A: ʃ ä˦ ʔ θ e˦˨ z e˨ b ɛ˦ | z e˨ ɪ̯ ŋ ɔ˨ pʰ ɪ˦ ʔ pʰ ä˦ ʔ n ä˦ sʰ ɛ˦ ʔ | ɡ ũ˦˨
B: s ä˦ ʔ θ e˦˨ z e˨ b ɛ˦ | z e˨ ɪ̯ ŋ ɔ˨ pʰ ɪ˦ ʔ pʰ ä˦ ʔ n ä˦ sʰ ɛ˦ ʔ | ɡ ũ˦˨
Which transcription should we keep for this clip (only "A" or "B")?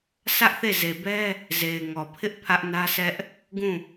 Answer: B